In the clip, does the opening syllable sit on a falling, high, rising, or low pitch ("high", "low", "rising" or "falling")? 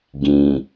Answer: low